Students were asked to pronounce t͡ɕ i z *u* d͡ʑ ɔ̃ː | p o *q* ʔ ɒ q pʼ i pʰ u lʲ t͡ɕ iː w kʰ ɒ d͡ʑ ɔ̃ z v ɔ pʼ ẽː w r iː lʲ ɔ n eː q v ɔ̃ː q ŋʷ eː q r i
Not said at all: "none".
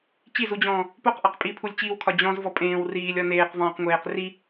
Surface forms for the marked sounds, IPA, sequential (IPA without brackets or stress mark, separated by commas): u, q